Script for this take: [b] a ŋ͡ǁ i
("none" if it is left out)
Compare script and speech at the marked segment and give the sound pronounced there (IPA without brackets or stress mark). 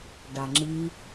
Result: ɖ